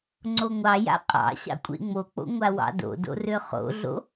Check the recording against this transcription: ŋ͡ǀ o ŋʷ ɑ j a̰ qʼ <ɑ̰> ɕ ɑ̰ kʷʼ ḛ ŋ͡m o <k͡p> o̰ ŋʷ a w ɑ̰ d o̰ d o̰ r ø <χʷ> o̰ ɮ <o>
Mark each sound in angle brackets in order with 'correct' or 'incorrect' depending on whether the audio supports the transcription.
correct, correct, incorrect: χ, incorrect: o̰

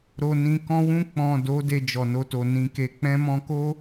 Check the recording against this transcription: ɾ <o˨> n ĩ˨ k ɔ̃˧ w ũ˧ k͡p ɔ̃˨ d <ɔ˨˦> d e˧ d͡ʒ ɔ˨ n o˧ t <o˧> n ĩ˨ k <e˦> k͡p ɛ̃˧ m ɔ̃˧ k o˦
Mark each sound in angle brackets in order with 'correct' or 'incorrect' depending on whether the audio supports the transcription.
correct, incorrect: o˨˦, incorrect: o˨, incorrect: e˨

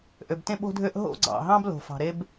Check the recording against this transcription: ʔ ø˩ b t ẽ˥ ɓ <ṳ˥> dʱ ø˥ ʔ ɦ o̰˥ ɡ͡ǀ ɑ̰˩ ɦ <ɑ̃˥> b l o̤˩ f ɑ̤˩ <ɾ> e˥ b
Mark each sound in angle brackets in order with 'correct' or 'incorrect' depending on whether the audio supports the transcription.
incorrect: o̤˥, correct, correct

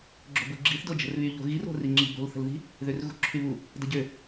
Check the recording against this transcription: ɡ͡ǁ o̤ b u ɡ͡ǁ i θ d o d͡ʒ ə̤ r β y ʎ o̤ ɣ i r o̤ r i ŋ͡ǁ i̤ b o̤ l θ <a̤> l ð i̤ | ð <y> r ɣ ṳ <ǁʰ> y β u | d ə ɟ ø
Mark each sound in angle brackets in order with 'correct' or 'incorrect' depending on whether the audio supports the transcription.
incorrect: ə̤, incorrect: ø, correct

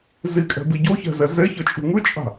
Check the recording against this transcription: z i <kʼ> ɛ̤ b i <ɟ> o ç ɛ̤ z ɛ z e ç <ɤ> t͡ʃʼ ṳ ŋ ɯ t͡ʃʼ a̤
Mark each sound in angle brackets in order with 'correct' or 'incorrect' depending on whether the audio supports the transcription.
correct, correct, correct

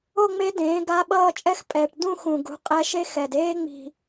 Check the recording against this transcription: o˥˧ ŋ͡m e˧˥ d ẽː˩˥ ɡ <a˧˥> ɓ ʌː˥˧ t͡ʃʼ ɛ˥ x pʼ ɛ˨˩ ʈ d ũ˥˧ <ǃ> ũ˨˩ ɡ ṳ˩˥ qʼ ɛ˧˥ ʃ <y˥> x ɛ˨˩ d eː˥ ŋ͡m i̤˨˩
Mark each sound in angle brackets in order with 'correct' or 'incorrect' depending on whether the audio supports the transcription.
correct, incorrect: x, incorrect: e˥

